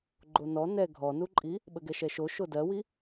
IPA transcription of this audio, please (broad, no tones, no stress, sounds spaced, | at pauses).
ɡ͡ǃ o n ɔ n ɛ ɡʱ ɔ n u ǃʼ i | ɓ ə ɡ ɛ ʃ ɛ ʃ o ʃ o d ɜ w i